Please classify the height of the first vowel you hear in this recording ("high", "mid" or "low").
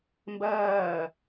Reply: low